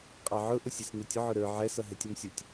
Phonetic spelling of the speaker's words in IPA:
qʼ ɑ ʕ ʊ ʔ ʊ sʲ ɛ s n ʊ tʲ ʊ ʕ ʊ ɾ ə˞ ʕ ɛ s ʌ ɦ ɛ tʲ ʊ m sʲ ʊ tʲ

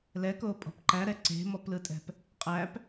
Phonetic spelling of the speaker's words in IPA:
l ɛ k o pʼ ɔ̤ p ǃ æ ɾ ɛ ǀ e̤ m ɔ p l ɯ tʼ ɛ̤ p | qʼ æ p

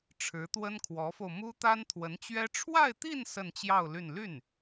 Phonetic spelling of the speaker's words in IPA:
ʈ͡ʂʰ ɻ̩˧˥ t̪ w ə˥ n kʰ w ɔ˧˥ f o˧ ʊ̯ m u˥ t̪ a˥ n t̪ʰ w ə˧˥ n t͡ɕ ɥ ɛ˥ ʈ͡ʂʰ w a˥˧ ɪ̯ t̪ i˥˧ n s ə˥˧ n t͡ɕ j ɑ˥˧ ʊ̯ l y˥˧ n l y˥˩ n

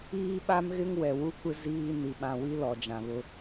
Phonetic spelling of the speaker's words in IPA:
iː˦ ɓ a˦ m ɣ ɪ˦ ŋ w ɛ˨ w u˦ kʷ ɪ˦ z iː˦ n i˨ ɓ ã˨ w i˦ l ɔ˨ d͡ʒ ã˨ β ʊ˦

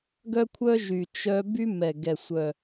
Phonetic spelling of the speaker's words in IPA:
ɡ œ˦ kʷʰ œ˦ ʒ y˨˩ t͡ʃ œ˦ b y˦ m ɛ˨˩ ɡ ɛ˨˩ sʷ œ˨˩

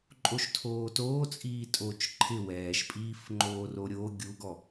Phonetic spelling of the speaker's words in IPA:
ǃʼ o ʃ tʰ oː t oː t͡sʼ iː tʼ o t͡ʃ ǃʰ ɪ w ɛː ʃ pʼ iː f ŋ͡ǃ oː r o ɾʲ o ɡʲ u ɡ ɔ

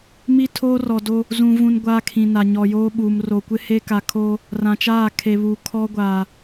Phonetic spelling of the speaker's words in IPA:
m i˦ tʰ oː˦ r ɔ˨ d o˦ | z ũ˨ v ũ˨ n ɡʷ aː˦ kʰ ĩ˨ n a˨ ɲ ɔ˨ j oː˦ ɓ uː˨ m r o˨ kʷ ɪ˦ h e˦ k a˨ kʰ oː˦ | r ã˨ t͡ʃ aː˦˨ kʰ e˨ β uː˨ kʰ ɔ˦ ɡʷ aː˨

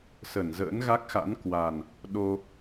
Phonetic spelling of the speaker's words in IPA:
s ə˧˩ n z ə̰ː˧˥ n ɣ a˦˥ k̚ x a̰˧˥ n k w a˨˩ n | ɗ o˧

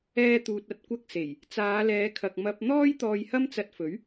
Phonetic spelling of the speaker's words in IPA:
ɛː˥ t̪ uː˧ t̚ ɐ˥ t̚ kʷ ɐ˥ k̚ s e˨˩ j | t͡s aː˨˧ l ɛː˨˧ kʰ ɐ˨ k̚ m ɐ˧ p̚ n̪ ɔː˥ j t̪ ɔː˧ j h ɐ˥ m t͡s ɐ˧ t̚ f ɵ˨˥ ɥ

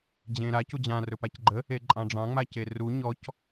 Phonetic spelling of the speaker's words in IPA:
d͡ʑ ẽ ɾ a c u d͡ʑ ã r ɵ p a c ɡ͡ǃ ə | e ǃʼ ɑ̃ ɖ͡ʐ ɑ̃ ŋ͡m a c e r u ɲ ɔ c

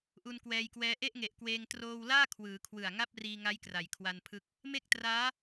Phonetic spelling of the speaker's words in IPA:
ʔ u˧ n k w ɛː˧ j k w ɛː˦˥ ʔ e˥˩ ʔ ŋ e˨˩ ʔ k w eː˧ ŋ t r oː˧ w l aː˥˩ kʰ w ɯː˩˦ kʰ w ɯ˨˩ a̯ ŋ a˥˩ p̚ r iː˧ ŋ a˦˥ j k r a˩˦ j kʰ w a˧ n pʰ ɯ˦˥ k̚ | m e˥˩ k̚ t r aː˦˥

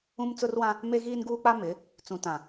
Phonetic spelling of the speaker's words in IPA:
ũ˦ m t͡s ʊ˦ r w ã˦ | m e˦ ɣ iː˦ n ɡ uː˦ k͡p a˦ m ɪ˨˦ | t͡s ũ˨ t ã˨

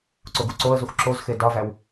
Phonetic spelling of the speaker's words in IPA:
ǀ o ɡ u ǀ o ə̯ z u x ǁ o z x e d ɒ v æ w

